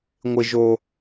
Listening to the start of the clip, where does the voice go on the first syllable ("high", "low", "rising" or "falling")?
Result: low